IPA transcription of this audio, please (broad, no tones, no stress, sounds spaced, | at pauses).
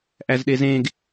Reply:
ʔ æ z ɗ e z ẽ ɡ